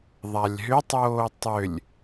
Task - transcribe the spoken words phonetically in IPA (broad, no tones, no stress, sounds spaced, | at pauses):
ðˤ a lʲ ɦ ʏ tˤ oː tˤ ʏ lʲ